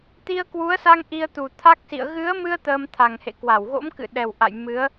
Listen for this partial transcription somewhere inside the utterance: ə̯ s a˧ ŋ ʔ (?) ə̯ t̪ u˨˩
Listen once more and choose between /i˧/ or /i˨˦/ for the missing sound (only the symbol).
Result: i˧